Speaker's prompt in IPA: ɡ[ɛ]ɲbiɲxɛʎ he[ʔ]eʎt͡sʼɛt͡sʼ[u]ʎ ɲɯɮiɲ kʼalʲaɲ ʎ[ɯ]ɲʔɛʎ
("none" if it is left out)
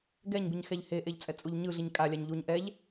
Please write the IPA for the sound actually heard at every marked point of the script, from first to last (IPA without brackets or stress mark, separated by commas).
ɛ, ʔ, u, u